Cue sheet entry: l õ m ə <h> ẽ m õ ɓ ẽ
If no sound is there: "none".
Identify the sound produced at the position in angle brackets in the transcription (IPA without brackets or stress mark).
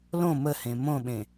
h